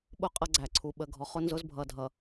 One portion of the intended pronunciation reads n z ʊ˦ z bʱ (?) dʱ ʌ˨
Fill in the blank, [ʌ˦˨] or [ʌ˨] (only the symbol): ʌ˨